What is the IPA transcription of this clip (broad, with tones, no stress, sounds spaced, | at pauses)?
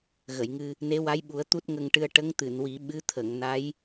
ɣ ə˨˩˨ j ŋ ɨ˧ | n e˧˥ w a˧˥ j ɓ u˨˩˦ ə̯ t̪ u˦˥ t̚ ŋ ə˧ ŋ ʈ ɨ˧ ə̯ ʈ ə˧˥ ŋ t̪ ɨ˨˩˨ n w i˨˩˦ ɓ ɨ˧˥ t̪ʰ ə˨˩˨ ŋ n a˧˥ j